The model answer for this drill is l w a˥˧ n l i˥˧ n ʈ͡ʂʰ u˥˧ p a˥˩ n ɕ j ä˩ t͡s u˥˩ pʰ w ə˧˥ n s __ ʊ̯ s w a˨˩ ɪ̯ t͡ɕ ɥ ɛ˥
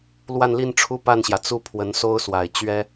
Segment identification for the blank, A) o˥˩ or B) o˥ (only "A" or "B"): B